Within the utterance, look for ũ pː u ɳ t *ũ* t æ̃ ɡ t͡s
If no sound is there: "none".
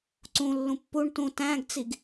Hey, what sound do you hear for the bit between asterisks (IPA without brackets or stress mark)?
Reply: ũ